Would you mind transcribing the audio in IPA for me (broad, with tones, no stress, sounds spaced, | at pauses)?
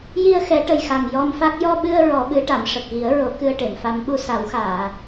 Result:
j i˧ ə̯ x ɛ˨˩˦ ʈ ə˨˩ j x a˨˩ ŋ j ɔ˧ m f a˦˥ k̚ j ɔ˧ ɓ ɨ˧ ə̯ ɹ ɔ˨˩˦ ɓ ɨ˨˩˦ ʈ a˨˩˨ m ʂ ə˨˩ k̚ ɣ i˨˩˦ ə̯ ɹ o˨˩˦ k ɨ˧ ə̯ ʈ e˨˩˨ m f a˧˥ m ɓ u˧ s a˨˩˦ w x aː˨˩˨